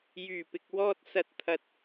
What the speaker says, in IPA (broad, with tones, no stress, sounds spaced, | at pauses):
j yː˨˩ p ɪ˨ k̚ w ɔː˧ t̚ s ɐ˨˥ t̚ t̪ʰ ɐ˨ t̚